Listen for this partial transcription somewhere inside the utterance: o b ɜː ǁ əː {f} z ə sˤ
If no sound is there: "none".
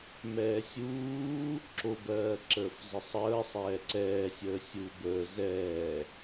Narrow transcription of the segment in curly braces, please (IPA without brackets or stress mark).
f